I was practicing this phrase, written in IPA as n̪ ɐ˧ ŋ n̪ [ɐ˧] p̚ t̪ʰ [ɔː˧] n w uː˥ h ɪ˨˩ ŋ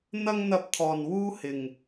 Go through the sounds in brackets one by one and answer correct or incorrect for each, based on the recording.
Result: correct, incorrect

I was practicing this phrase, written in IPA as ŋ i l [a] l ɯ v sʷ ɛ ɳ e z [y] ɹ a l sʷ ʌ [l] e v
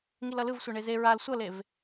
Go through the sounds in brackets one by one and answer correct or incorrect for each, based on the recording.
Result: incorrect, incorrect, correct

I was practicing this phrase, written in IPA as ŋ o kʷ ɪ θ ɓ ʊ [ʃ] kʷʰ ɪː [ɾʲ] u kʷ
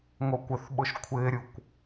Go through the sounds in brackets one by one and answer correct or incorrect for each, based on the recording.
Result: correct, correct

